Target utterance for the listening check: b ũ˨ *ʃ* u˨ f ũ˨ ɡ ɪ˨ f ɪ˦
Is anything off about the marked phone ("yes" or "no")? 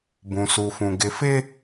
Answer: yes